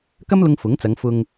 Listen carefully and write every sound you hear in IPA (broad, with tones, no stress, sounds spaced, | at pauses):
k ɐ˥ m l ʊ˧ ŋ f ʊ˨˥ ŋ t͡s ɐ˨˧ ŋ f ʊ˧ ŋ